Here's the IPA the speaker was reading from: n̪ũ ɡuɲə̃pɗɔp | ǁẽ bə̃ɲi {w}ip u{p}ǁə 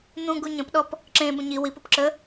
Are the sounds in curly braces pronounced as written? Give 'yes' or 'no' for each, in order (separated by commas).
yes, yes